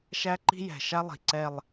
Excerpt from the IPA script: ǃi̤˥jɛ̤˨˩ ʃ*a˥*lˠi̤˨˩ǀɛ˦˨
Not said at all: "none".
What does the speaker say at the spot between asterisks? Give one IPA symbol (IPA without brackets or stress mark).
a˥